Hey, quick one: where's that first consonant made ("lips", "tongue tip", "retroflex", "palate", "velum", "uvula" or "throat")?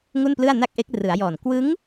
velum